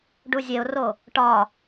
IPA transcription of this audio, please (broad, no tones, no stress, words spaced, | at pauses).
ɖuzʲeʊ̯ro | ʈɒ